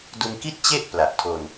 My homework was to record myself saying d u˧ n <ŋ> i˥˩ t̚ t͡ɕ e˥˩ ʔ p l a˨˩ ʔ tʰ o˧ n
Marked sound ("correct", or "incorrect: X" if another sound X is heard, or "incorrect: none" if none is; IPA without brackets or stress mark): incorrect: k